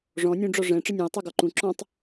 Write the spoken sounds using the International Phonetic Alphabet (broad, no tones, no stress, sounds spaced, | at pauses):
ʐ ɔ̃ nʲ ũ ɖ͡ʐ ɔ ʐ ɛ̃ ʈ͡ʂ ə nʲ ũ ə̯ tˤ ʉ ɡ ɔ ǃ ũ ǁ ɔ̃ tˤ